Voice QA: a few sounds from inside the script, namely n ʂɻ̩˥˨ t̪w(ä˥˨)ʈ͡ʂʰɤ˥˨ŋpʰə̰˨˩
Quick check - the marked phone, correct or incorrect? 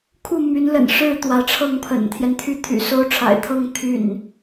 incorrect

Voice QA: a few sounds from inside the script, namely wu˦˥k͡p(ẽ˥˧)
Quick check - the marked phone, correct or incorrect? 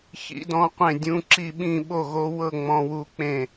correct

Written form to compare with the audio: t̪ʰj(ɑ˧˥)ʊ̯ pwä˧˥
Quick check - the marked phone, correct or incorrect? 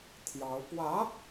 correct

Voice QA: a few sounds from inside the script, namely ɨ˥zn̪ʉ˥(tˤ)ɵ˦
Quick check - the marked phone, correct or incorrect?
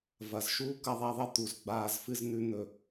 incorrect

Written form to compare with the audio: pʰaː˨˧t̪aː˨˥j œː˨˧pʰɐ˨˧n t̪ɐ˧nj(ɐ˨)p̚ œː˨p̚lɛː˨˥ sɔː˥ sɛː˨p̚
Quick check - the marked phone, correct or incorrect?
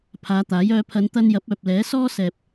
incorrect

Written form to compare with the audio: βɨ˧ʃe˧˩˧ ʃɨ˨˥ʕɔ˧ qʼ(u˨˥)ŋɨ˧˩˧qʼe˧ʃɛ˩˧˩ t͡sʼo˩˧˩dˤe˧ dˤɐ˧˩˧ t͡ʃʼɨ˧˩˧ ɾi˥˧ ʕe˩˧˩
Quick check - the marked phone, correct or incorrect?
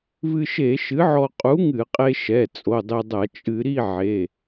correct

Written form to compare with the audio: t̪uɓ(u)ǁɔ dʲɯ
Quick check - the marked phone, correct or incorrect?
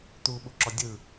correct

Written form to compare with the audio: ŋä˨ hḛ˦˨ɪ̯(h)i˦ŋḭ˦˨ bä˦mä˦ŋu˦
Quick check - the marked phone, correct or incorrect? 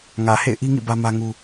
incorrect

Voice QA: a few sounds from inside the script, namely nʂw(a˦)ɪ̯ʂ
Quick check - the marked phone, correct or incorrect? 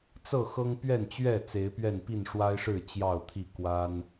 correct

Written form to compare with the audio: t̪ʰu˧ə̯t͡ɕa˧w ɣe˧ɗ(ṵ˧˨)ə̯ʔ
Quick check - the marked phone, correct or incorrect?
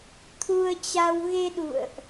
correct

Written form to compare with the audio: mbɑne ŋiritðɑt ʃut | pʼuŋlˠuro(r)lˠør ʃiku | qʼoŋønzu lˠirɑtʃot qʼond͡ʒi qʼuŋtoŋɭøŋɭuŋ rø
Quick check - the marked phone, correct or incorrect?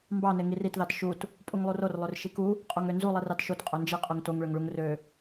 correct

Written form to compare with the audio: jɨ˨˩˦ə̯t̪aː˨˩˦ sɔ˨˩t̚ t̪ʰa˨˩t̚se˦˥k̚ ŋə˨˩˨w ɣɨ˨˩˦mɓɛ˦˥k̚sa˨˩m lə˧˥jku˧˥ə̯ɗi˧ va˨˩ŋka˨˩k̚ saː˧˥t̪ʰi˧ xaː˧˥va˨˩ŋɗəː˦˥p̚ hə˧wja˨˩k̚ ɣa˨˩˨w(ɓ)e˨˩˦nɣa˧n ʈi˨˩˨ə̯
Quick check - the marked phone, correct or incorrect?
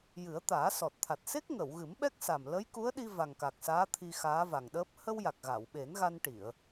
correct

